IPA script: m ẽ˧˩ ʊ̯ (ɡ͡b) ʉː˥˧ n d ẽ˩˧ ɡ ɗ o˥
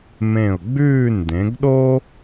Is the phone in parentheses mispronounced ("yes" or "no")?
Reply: no